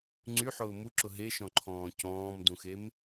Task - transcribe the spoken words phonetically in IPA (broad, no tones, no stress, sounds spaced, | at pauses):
ŋ͡ǀ y ħ ʊː m u ǁ ʊ ɦ e ʃ ɔ̃ ǃʰ ɔ̃ː c ɔ̃ː m d ũ x e m